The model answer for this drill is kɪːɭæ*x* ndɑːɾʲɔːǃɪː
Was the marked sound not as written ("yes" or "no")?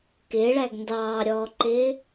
yes